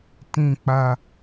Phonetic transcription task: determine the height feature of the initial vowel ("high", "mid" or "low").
high